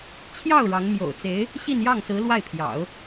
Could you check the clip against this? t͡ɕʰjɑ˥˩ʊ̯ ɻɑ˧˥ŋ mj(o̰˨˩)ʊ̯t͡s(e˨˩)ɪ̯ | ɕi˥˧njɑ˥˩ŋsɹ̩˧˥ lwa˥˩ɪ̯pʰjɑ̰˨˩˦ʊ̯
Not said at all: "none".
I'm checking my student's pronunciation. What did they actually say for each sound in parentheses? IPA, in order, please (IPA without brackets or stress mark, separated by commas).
o̰˨˩, e˧˥